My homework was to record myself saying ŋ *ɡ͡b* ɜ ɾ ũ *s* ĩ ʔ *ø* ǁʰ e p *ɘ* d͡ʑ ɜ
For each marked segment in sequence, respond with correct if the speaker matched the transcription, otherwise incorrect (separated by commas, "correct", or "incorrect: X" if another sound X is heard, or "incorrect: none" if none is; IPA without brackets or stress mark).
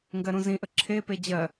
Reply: incorrect: ɡ, incorrect: z, incorrect: ə, incorrect: e